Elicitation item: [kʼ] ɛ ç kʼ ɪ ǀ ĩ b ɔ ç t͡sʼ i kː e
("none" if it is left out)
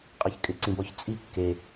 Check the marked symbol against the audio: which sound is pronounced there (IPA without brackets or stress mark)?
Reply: qʼ